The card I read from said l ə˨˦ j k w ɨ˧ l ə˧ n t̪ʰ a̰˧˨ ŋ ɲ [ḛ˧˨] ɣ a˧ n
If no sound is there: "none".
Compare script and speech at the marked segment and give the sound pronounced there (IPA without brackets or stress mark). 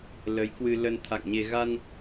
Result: e˧